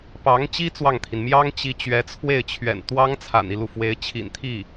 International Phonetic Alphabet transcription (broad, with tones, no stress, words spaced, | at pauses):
pɑ˧˥ŋt͡ɕi˥ t͡swɑ˥˩ŋt̪ʰi˩n mjɑ˥ŋt͡ɕi˧˥ t͡ɕɥɛ˧˥t͡sʰwe˥˩ɪ̯t͡ɕʰɥɛ̰˨˩n t̪wɑ˥ŋ t͡sʰa̰˨˩ni˦lu˩fwe˧˥ɪ̯ t͡ɕʰḭ˨˩nt̪ʰi˥˩